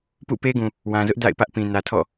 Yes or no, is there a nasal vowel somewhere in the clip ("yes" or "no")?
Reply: yes